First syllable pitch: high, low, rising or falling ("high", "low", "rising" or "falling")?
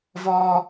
high